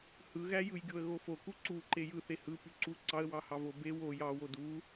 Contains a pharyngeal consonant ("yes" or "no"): no